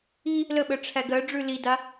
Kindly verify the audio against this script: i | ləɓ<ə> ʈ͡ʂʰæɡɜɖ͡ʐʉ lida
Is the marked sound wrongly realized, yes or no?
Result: no